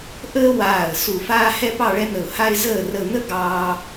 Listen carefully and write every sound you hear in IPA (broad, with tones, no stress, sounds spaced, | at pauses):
ʔ əː˥ w aː˧˩ ə̯ s u˧˩ f aː˥ h ɛ˥ p ɑ˥˧ ɭ ɛ˥ n̪ ə˧˩ ʊ̯ h a˥ ɪ̯ z əː˥˧ r ə˥˧ n̪ ə˥ ɡ ɑː˥